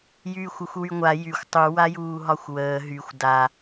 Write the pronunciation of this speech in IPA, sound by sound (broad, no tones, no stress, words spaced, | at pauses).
jyːxʷoxʷwyŋʷa jyxʷ tˤu wajuːɦɒxʷwəː ɦyxʷ da